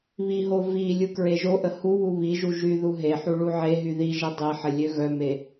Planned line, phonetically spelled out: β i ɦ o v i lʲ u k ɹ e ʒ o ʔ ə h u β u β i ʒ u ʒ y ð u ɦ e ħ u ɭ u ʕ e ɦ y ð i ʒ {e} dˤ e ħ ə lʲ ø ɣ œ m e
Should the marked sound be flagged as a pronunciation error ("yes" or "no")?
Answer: yes